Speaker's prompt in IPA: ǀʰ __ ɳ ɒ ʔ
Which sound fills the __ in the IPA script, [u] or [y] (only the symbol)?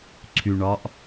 y